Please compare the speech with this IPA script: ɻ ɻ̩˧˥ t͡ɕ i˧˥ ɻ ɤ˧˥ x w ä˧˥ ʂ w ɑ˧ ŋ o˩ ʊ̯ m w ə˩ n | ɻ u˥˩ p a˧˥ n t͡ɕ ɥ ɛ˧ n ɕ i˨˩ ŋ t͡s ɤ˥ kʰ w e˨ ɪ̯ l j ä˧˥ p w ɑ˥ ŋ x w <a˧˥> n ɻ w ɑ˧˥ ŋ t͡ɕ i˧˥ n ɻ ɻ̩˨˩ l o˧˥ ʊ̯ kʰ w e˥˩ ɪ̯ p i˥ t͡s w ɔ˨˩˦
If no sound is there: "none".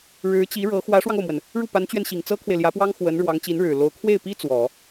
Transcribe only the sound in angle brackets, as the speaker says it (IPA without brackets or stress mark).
ə˧˥